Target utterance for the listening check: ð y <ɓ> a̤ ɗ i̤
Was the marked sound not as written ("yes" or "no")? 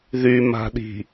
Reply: yes